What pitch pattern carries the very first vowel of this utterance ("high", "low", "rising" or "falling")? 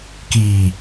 low